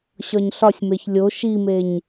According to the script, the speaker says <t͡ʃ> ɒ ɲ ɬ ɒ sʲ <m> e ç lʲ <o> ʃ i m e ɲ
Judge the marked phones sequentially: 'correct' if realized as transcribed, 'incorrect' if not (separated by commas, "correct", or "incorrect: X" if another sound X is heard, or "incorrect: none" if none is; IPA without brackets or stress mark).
incorrect: ɕ, correct, correct